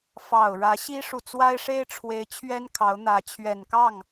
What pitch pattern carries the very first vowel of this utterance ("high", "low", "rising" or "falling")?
low